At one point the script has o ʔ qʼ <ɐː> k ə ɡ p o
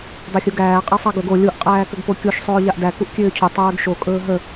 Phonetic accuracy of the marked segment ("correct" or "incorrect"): incorrect